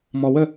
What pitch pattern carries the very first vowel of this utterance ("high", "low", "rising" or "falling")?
low